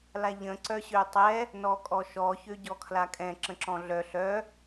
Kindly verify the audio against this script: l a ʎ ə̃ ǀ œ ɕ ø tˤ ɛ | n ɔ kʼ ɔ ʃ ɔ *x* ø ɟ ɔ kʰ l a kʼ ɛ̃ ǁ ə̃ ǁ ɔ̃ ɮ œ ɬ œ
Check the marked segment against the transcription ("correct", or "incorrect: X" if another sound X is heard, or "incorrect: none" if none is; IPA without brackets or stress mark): incorrect: ç